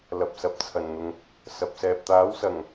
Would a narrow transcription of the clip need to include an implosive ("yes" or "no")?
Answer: no